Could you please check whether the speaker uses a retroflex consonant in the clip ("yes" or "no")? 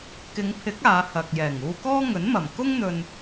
no